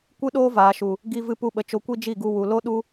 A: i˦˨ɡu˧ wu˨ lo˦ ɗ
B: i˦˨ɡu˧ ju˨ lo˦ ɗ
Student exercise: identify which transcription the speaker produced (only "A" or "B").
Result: A